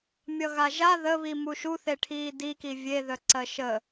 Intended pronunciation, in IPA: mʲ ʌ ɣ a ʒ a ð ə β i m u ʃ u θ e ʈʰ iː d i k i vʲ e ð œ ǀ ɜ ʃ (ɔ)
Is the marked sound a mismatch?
yes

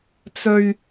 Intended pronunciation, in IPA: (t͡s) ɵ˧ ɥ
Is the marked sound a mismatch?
no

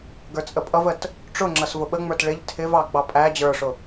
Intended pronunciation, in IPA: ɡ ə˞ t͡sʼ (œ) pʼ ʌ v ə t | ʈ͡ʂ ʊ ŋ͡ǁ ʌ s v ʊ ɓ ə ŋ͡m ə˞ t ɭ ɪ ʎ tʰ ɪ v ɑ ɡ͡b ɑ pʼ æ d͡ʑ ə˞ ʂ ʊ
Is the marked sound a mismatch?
yes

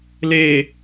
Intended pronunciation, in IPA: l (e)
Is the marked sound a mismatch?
no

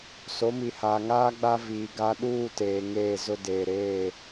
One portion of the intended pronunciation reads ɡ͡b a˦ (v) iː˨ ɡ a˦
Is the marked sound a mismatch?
no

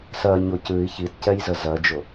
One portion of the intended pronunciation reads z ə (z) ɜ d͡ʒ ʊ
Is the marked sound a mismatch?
no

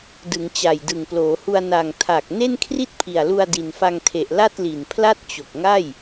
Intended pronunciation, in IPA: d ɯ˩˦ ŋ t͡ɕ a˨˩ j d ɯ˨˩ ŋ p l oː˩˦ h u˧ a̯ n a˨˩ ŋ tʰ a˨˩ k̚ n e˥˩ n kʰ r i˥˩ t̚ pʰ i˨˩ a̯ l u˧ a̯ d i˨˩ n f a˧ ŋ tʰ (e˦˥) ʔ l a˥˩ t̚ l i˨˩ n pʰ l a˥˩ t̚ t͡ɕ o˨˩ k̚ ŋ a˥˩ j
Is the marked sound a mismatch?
yes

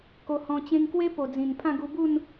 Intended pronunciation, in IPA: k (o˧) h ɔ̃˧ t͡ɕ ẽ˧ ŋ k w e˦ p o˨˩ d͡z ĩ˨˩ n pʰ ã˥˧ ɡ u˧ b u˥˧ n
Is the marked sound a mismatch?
no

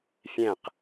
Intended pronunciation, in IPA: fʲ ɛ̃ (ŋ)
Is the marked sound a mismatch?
yes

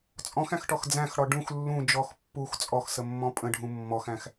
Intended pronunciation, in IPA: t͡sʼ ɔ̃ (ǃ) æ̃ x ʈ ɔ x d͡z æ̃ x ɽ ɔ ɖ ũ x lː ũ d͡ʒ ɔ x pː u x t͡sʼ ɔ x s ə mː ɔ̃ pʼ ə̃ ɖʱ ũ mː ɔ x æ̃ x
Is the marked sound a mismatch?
yes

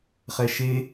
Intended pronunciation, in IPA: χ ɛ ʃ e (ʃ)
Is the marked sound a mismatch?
yes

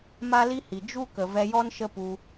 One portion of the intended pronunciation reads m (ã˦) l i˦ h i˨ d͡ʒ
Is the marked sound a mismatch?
yes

